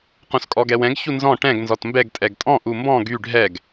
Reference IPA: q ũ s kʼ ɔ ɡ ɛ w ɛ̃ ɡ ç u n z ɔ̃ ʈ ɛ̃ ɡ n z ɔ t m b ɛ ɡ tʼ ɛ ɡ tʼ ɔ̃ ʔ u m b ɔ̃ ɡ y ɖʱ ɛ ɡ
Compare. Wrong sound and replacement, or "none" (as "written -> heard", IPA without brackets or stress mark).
none